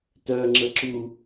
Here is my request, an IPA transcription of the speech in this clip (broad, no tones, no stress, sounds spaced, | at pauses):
t œ ŋ͡ǁ ə ǁ u